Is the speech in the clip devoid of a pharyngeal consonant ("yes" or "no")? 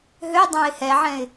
no